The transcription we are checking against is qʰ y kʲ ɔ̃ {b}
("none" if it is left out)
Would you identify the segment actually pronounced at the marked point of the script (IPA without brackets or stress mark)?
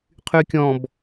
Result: b